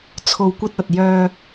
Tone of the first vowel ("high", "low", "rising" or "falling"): low